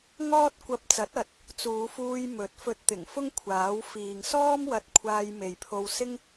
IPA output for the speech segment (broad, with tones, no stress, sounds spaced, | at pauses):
ŋ ɔː˥ t̚ kʷ ɐ˧ p̚ t͡s ɐ˨˥ t̚ ɐ˨˥ t̚ | t͡s uː˨˧ f uː˧ j m ɵ˨˥ t̚ f ɵ˧ t̚ t̪ ɪ˨˩ ŋ f ʊ˥ ŋ kʷʰ aː˨˥ w f iː˨ ŋ s ɔː˥ m w ɐ˧ t̚ kʷʰ aː˧ j m e˨ j pʰ o˧ w s ɪ˥ ŋ